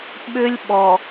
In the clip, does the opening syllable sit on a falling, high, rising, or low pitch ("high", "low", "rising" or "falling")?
high